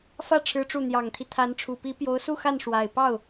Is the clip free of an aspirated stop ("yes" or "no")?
no